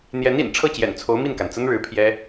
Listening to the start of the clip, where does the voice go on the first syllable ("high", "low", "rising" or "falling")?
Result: rising